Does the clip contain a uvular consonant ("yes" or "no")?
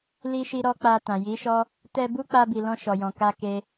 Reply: no